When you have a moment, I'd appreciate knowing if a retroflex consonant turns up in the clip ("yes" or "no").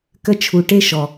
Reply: yes